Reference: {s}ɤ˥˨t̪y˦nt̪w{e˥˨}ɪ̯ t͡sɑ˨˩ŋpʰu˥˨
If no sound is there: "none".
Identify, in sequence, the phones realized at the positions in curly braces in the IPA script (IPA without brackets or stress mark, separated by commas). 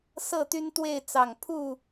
s, e˥˨